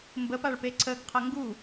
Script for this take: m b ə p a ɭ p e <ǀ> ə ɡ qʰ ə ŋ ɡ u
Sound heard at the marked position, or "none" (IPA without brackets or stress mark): ǀ